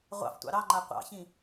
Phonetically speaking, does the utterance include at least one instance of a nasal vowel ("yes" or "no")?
yes